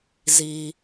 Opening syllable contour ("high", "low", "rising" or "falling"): low